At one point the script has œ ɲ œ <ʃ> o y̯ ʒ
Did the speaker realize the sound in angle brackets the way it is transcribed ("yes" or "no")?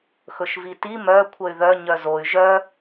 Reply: no